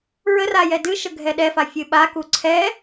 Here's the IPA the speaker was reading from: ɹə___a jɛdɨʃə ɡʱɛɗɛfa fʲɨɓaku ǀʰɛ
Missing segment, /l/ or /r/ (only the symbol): r